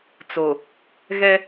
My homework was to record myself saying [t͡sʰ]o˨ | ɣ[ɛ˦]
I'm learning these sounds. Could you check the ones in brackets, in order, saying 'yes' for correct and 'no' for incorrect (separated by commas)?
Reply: no, yes